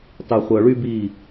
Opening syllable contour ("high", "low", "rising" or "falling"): low